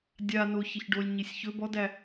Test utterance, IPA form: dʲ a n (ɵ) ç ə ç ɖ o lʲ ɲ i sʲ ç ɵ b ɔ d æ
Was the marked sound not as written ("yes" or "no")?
yes